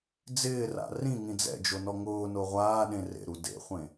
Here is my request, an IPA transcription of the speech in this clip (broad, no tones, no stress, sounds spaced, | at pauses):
d͡z ɪː r a̰ r ĩ ŋ ĩ d͡z ɛ̰ d͡ʒ o n ɔ ŋ ʊː n o ʁʷ aː ɗ ẽ r ḛ ɾ u d ḛ χʷ ẽ